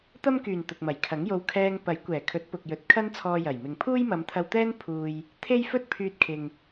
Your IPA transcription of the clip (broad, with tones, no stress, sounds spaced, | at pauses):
t̪ ɐ˥ m k yː˨˩ n t̪ ʊ˨ k̚ m ɐ˨˩ j kʰ ɐ˨˥ ŋ j o˧ w kʰ ɛː˧ ŋ p ɐ˨˥ j kʷ ɛː˨˩ kʰ ɵ˨˥ t̚ p ʊ˨ k̚ j ɵ˨˥ t̚ kʰ ɐ˥ n t͡sʰ ɔː˧ j ɐ˨˩ j m ɪ˨ ŋ pʰ uː˥ j m ɐ˨˧ m t̪ʰ ɐ˧ w t̪ ɛː˥ n pʰ uː˧ j | t̪ʰ e˥ j f ɵ˥ t̚ pʰ yː˧ t̚ kʰ ɪ˨ ŋ